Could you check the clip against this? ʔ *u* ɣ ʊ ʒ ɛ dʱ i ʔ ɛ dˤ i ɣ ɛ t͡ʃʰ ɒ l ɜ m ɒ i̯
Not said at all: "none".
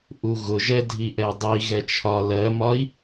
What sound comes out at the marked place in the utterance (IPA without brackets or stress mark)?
u